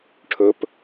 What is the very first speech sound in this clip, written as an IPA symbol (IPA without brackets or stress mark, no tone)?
ʈʰ